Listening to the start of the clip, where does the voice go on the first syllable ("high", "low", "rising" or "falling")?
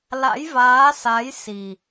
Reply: rising